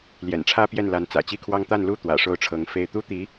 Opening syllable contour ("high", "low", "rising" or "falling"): low